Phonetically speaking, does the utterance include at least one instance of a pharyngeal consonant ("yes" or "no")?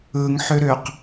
yes